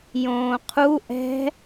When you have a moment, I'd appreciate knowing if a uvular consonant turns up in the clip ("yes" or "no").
yes